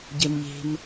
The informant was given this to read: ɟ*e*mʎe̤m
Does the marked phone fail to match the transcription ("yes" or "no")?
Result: no